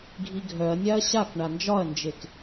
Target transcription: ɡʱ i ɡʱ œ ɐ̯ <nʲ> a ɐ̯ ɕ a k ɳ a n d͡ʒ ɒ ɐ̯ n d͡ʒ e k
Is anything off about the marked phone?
no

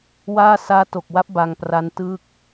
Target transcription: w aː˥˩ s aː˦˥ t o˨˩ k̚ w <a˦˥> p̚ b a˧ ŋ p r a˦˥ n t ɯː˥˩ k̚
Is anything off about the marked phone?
no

